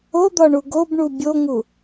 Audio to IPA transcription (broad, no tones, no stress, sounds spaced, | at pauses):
o d̪ ɒ ɳ u ɡ o b ɳ u bʲ o ŋ u